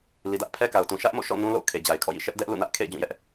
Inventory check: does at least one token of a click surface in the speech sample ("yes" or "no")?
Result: no